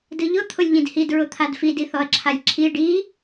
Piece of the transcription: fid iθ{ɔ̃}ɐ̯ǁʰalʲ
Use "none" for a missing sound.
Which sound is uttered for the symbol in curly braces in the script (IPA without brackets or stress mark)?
ɔ